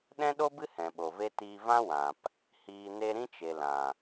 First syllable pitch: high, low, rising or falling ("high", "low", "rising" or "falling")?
high